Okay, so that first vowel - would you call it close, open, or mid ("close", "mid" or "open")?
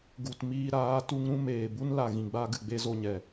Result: close